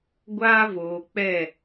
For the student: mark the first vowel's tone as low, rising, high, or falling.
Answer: high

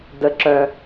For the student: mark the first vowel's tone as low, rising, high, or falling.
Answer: low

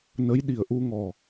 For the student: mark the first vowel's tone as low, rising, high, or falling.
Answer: rising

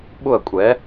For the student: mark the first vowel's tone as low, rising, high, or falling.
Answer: falling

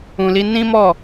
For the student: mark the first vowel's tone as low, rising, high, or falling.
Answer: low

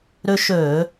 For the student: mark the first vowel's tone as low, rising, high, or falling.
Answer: high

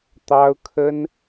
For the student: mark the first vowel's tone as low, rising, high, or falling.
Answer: high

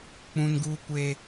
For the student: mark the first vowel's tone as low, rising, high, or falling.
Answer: high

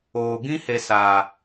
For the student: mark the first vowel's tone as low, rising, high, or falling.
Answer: low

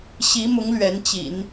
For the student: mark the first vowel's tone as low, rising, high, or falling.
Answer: rising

